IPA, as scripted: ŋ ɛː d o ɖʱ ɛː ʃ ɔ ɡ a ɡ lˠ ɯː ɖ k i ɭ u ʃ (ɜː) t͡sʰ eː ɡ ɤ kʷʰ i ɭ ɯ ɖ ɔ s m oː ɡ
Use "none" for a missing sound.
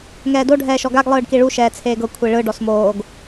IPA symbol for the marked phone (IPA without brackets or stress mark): ɛː